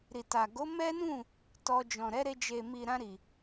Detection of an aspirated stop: absent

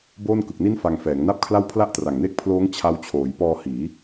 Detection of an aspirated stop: present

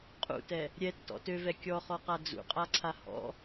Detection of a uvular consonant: present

